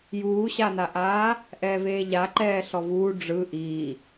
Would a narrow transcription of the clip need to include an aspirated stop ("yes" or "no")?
no